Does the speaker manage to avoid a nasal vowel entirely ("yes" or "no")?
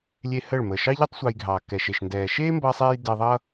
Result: yes